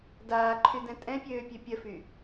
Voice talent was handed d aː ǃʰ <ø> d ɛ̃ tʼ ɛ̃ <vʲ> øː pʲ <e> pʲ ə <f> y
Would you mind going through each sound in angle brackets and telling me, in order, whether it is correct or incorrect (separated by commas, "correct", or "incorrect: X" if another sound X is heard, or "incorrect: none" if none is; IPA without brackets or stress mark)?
incorrect: y, incorrect: pʲ, incorrect: ø, correct